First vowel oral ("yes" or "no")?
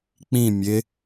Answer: no